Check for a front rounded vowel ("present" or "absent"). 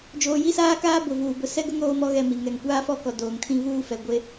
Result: absent